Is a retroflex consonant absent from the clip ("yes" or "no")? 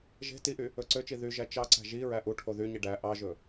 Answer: no